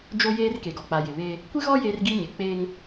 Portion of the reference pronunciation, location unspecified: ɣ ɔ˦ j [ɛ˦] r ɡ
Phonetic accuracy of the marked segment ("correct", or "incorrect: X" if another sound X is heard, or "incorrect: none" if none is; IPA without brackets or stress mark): incorrect: e˦